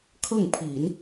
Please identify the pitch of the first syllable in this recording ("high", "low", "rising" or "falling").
falling